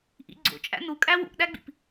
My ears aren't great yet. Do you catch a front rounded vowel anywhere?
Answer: no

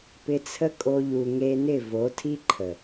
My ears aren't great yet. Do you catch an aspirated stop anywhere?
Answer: yes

